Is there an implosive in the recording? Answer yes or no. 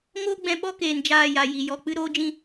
yes